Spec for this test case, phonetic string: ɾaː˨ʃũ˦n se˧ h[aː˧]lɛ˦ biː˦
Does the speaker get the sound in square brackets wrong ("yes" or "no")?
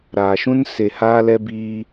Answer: yes